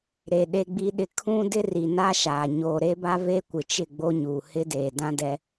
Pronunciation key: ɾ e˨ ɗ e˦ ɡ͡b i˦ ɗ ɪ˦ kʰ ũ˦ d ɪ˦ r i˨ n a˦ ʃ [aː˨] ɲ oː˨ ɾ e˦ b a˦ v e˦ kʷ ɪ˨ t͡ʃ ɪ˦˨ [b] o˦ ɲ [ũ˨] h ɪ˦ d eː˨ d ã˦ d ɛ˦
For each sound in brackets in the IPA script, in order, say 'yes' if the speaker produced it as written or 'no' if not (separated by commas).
yes, no, no